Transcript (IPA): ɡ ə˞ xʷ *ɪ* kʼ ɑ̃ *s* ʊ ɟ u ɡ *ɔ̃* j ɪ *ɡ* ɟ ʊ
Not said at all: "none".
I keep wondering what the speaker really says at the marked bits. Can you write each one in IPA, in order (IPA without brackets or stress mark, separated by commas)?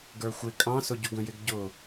ɪ, s, ə̃, ɡ